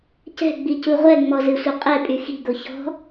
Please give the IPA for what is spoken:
c ɛ̤ ɡ͡b i c u ʁʷ ɛ ŋ͡m ɔ z ɨ sʷ ɘ qʼ ɛ pʼ y x i̤ ɡ o ç ɔ̤

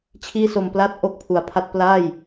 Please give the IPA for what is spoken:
t͡ɕʰ iː˥˩ s o˧ m p l a˥˩ t̚ ʔ o˥˩ k̚ pʰ u˨˩ a̯ pʰ a˥˩ t̚ p l aː˥˩ j

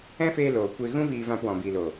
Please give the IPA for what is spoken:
ɛ̃˦ f eː˧ l oː˨ kʷ e˧ ɣ ũ˦ v iː˧ v ã˧ p w ɔ̃˨ b iː˨ l o˨

